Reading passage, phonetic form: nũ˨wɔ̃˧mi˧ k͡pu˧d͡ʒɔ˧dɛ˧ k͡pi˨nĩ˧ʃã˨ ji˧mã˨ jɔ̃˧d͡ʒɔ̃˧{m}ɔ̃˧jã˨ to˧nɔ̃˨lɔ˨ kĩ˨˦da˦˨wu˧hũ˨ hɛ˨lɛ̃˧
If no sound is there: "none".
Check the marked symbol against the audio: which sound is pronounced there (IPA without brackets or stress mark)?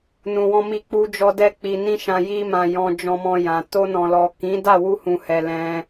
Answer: m